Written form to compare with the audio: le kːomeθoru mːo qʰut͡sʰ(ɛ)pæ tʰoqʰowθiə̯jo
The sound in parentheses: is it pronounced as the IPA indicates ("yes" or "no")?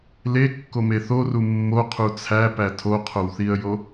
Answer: no